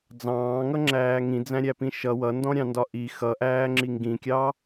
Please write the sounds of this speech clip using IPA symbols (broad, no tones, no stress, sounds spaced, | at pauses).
d͡z ɑ̃ː ŋ ʌ ŋ͡ǁ æː ŋ ĩ d͡z æ̃ ɾʲ æ p ĩ ʃ ʌ w ʌ n d ɔ̃ ɾʲ ɑ̃ n d ɒ ʔ i x ʌ ʔ æː ŋ͡ǁ i ŋ ɡ ĩ kʲ ɑ